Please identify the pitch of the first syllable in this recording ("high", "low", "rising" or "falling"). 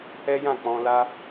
high